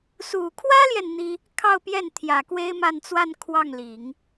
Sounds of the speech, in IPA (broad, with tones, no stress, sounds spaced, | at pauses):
s u˨˩ kʰ w ä˥ l j ɛ˨ n n̪ i˥ | kʰ ɑ˥˧ ʊ̯ p j ɛ˥˩ n t̪ʰ j ä˨˩ k w e˥ ɪ̯ m a˥˧ n t͡s w a˥˧ n kʰ w ɑ˥˩ ŋ l i˨˩˦ ŋ